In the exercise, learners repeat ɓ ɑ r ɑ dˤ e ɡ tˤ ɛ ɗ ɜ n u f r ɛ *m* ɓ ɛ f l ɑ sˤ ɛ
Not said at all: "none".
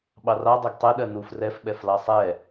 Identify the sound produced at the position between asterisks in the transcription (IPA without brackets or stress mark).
f